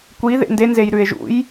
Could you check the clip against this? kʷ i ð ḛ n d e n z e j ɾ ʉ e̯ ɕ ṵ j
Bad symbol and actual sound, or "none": ɕ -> ʒ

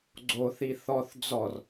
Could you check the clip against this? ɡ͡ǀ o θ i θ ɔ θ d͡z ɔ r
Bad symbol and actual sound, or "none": none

